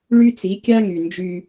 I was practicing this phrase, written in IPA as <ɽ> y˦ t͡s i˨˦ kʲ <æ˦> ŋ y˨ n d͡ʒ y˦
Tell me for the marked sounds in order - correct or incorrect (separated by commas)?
incorrect, incorrect